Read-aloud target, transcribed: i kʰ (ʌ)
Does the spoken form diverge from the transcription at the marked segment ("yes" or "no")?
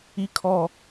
yes